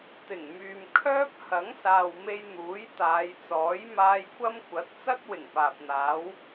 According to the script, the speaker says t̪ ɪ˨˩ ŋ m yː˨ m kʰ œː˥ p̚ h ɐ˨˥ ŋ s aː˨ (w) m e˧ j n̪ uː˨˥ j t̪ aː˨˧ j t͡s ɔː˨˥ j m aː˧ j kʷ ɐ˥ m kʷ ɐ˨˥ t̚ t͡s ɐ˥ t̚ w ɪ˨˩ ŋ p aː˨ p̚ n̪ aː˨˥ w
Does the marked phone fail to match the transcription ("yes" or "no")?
no